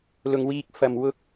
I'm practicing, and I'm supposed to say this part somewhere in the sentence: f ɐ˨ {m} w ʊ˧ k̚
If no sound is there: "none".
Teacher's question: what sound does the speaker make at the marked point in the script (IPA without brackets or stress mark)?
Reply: m